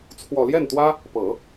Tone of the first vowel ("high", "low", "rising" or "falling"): low